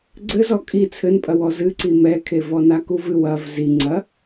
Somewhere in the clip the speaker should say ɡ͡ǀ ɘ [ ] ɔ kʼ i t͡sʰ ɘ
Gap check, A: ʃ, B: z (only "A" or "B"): B